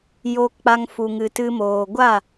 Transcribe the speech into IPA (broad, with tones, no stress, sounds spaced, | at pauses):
j oː˧ k k͡p a˧ ŋ f u˨ ŋ ɨ˨ t ɨ˧ m oː˨ ɡʷ a˦˨